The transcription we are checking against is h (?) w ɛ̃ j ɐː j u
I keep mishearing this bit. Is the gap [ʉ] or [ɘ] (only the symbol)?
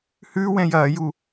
ʉ